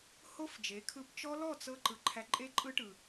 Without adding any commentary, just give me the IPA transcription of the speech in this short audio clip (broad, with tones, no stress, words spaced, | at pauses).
ho˦fd͡ʒe˨˦ kʰɯ˧pt͡ʃɔ˦ lɔ˦˨t͡sɤ˧ǃɯ˨ ǃʰæ˧ǃʼe˦ǃʼɯ˦ʈɯ˨